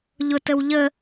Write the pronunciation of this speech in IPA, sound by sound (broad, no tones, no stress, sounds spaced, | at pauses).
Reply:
ʎ ʊ t ə w ʎ ə